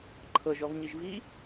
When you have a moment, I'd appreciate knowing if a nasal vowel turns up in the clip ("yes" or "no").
no